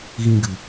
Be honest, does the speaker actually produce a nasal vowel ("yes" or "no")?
yes